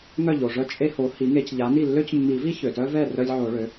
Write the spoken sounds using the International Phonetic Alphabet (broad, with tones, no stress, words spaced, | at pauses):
ŋœ˥˩ʎo˩ʐœ˦ t͡ʃʼe˦ho˩˥ hi˩˥ŋe˨˩˦cʎa˩˥ni˥˩ lːø˦cmːi˨˩˦vi˦ çø˩tœ˦vɛ˥˩ rœ˦lʲʕo˨˩˦ɭø˩˥